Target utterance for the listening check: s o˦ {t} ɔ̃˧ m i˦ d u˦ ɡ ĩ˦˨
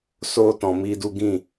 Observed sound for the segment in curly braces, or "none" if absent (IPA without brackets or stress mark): t